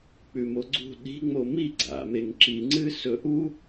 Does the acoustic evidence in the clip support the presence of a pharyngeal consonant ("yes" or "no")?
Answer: no